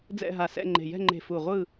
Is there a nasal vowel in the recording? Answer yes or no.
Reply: no